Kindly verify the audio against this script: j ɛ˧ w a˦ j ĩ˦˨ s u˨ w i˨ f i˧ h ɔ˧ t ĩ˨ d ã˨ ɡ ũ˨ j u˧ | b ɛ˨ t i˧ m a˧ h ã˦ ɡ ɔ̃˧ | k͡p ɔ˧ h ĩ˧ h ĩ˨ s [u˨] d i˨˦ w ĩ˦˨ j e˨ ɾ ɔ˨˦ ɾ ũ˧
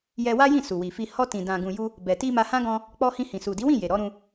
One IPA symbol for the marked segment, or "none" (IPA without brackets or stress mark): u˨